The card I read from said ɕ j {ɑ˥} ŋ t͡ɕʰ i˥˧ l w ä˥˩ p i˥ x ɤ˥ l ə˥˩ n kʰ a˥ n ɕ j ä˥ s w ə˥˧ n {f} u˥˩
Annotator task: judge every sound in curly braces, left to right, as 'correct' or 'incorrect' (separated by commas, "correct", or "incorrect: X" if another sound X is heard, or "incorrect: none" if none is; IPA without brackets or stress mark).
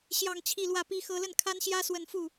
incorrect: ɑ˥˧, correct